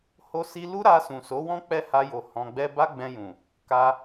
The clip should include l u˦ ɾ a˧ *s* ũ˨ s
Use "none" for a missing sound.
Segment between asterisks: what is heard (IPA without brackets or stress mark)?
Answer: s